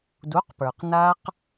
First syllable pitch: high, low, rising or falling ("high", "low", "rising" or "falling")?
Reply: rising